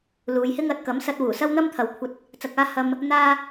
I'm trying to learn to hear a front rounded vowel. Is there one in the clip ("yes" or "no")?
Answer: no